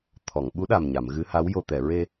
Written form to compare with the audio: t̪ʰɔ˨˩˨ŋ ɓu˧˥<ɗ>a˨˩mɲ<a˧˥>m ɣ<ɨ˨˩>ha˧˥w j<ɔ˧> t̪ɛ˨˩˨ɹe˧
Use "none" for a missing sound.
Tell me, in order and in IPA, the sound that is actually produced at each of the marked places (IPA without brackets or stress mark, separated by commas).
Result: ɗ, a˨˩˨, ɨ˧˥, o˧